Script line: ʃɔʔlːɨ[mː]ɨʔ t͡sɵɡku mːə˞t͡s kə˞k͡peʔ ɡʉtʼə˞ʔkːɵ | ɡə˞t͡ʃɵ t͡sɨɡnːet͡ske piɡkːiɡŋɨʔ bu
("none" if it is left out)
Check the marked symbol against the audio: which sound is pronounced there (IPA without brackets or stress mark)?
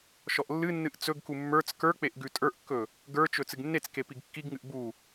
nː